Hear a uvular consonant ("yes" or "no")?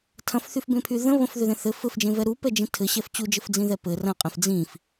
yes